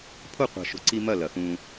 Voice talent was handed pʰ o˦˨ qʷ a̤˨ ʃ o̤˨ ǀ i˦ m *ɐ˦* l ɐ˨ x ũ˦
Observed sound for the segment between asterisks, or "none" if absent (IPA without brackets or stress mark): ɐ˦˨